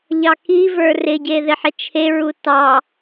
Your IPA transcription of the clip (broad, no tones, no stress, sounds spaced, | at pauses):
ʎ ɑ k i v ə˞ r ɪ ɟ e ð ɪ ħ ɪ t͡ʃʰ e ɹ u t ɑ